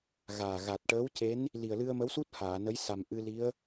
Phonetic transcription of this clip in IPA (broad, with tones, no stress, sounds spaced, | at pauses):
ɣ aː˨˩ ɣ a˨˩ t̚ ʈ əː˧˥ w c e˧˥ n | l i˨˩ ə̯ l ɨ˧ ə̯ m ə˧˥ w s u˦˥ t̚ h aː˨˩˨ n ə˧˥ j s a˨˩ m ʔ ɨ˧ l i˧˥ ə̯